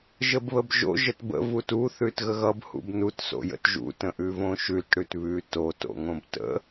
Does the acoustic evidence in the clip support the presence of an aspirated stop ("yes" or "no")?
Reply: no